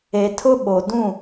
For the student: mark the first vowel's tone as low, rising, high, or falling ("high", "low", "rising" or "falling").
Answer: low